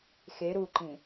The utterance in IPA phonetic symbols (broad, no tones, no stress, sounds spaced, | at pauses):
x e ɾ u ǃ ĩ